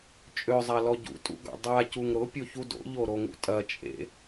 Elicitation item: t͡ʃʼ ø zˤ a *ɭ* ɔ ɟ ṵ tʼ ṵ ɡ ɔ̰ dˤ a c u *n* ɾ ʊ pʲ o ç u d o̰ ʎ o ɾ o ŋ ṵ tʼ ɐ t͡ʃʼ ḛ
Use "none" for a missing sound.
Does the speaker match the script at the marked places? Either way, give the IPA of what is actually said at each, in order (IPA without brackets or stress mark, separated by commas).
l, ŋ